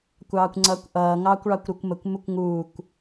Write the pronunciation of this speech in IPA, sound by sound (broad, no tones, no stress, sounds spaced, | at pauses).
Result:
kʷ ɑː kʷ ŋ͡ǀ ʌː kʷ ʔ ʌː ŋ ɑː kʷ ɭ ɑ kʷ ɾ u kʷ m ə kʷ m u kʷ ŋ uː kʷ